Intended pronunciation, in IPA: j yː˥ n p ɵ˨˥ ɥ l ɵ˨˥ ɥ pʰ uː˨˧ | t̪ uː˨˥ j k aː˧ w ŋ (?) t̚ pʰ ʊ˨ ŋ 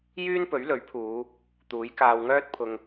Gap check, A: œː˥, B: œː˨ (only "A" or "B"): A